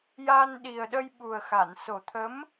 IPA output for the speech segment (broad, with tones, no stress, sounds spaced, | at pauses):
j a˧ n ɗ i˨˩ ə̯ ɗ ə˧ j ɓ u˨˩ ə̯ x a˨˩˨ n s o˨˩ t̪ʰ ə˧˥ m